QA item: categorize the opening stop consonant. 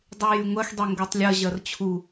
plain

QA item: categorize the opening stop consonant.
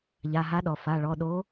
implosive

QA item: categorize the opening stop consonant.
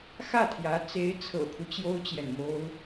aspirated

